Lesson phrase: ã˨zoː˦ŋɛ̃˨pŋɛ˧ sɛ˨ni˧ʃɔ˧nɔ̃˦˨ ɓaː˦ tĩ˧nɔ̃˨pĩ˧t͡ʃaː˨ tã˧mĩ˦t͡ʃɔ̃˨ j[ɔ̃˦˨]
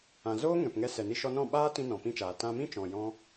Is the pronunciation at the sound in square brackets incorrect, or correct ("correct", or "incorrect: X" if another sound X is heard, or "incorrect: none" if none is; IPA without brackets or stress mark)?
incorrect: ɔ̃˦